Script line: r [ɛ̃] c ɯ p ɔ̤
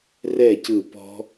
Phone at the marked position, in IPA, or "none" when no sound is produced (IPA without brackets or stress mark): ɛ